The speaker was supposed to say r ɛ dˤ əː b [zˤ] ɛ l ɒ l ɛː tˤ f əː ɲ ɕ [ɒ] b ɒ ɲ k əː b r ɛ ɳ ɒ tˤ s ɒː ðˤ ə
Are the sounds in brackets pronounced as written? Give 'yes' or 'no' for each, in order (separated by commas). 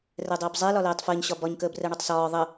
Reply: yes, yes